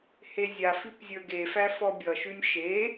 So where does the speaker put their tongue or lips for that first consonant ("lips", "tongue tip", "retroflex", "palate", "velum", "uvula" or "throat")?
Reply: throat